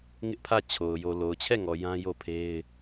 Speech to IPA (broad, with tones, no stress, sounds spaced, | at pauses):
ŋ ɪ˦ ʔ pʰ ä˦˨ t͡ɕʰ o˨ ʊ̯ j o˨ l o˨ ʊ̯ t͡ɕʰ ɛ˦˨ ŋ ɔ˨ j ã˦ j o˦˨ pʰ e˦ ɪ̯